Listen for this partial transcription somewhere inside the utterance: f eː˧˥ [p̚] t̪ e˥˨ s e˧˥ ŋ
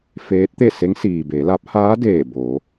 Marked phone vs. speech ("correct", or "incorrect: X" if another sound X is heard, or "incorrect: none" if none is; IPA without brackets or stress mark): incorrect: t̚